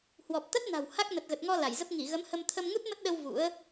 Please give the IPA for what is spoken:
h w ɔ˨˩ p̚ t̪ ə˦˥ t̚ n a̤˨˩ w h a˦˥ k̚ n ə˨˩ t̚ ɣ ə˨˩ t̚ ŋ ɔ˧ l a˧˩ j z ə˦˥ p̚ ŋ i˧˩ ɣ ə˨˦ m h ə˧ m t̪ʰ ə˧ m ŋ u˦˥ t̚ m ə˦˥ t̚ ɗ ə˧ w v ṵ˧˥ ə̯

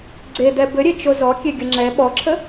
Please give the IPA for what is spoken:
ɡ͡ǀ e d̪ ɛ b ɘ ɾʲ e t͡ʃ o z ɔ kʲ e ɡʲ ə ŋ͡ǁ ɛ ɓ ɔ ǁʰ ə

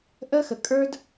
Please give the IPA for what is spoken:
ʔ ə˦ x ə˨ kʼ ə˞˦ d

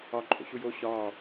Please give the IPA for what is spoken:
ɒ ǃʼ o̰ ɕ u j o ɕ ɒː

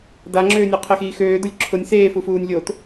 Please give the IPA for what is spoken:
d a ŋ͡ǁ øː nʲ ɔ qʰ e x iː x øː d ʊ lʲ ǁʰ ʊ nʲ s eː f u f uː nʲ lʲ o t

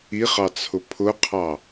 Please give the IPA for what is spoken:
i χ ɑ t͡sʰ ʊ pʰ ʊ qʰ ɑ

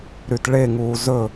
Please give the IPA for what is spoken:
ɾ y t ɭ e ŋ uː z ɵ

